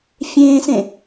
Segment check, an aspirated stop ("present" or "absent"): absent